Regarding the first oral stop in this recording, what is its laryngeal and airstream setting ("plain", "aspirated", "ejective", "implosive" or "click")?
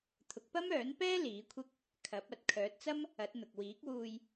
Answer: aspirated